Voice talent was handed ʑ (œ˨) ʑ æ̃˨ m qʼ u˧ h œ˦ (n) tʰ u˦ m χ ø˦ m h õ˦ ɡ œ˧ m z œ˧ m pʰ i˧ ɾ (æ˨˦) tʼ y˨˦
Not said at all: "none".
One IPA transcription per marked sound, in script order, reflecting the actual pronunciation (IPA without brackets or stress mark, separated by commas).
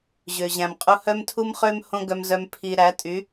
ø˨, m, æ˨˦